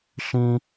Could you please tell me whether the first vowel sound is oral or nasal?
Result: nasal